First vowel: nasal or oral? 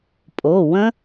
oral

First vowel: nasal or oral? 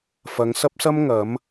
oral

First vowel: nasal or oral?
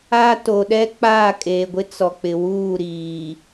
oral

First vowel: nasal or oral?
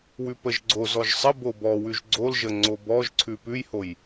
oral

